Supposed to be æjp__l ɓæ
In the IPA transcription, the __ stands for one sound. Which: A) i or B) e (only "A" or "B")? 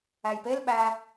B